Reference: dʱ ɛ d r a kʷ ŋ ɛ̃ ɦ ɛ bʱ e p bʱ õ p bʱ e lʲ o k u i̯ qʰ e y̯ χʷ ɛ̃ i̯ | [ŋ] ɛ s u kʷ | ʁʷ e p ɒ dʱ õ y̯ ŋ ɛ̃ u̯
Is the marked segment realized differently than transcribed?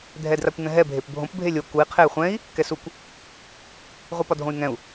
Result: yes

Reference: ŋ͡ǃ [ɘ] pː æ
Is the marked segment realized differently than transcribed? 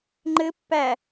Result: no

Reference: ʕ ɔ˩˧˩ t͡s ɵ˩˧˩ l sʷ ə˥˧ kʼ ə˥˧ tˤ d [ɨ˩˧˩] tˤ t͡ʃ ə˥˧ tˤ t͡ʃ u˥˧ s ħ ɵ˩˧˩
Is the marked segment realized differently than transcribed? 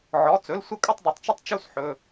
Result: yes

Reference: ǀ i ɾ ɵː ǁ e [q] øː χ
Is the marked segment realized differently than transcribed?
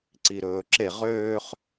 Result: yes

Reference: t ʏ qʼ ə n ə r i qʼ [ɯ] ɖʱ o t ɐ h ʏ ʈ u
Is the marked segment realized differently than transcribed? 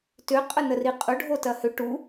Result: yes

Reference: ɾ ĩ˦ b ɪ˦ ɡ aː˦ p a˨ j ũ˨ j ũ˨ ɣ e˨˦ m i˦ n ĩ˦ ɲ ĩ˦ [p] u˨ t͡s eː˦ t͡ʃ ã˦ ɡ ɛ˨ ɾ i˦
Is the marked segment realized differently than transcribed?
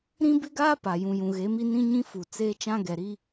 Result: yes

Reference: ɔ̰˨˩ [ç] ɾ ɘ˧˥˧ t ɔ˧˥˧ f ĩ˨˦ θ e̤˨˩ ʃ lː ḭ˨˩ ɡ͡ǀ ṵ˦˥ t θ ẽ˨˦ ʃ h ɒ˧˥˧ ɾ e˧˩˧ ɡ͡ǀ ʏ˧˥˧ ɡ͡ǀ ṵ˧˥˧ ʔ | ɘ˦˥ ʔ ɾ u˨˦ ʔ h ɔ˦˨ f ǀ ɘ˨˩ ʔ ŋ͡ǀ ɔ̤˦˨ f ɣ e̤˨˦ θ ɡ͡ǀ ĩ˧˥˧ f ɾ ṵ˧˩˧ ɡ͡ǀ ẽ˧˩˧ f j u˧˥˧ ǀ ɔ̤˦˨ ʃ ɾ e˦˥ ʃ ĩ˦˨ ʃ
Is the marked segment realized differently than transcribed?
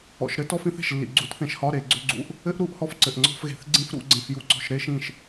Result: yes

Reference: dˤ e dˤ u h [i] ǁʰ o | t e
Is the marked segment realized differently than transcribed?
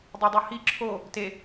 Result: no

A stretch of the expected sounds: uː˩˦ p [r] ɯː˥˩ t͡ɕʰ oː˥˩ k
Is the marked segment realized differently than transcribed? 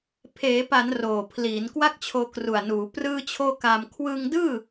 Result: no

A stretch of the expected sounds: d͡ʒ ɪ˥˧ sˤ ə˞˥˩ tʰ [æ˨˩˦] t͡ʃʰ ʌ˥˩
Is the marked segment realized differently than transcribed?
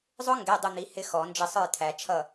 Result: no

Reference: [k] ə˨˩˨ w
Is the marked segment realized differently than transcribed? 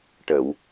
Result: yes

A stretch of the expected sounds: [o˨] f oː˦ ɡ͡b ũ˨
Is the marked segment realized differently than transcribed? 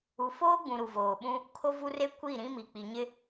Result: yes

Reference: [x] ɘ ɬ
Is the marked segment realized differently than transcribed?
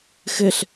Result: no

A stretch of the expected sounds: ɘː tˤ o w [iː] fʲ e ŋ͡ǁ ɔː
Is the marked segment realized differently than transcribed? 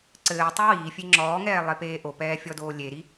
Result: no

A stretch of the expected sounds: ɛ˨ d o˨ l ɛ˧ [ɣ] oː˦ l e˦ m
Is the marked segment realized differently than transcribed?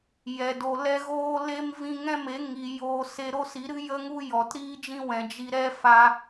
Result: no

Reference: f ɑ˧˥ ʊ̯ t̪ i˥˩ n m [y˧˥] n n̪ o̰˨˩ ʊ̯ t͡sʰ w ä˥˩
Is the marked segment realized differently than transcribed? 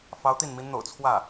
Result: yes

